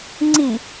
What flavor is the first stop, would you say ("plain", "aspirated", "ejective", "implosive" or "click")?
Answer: click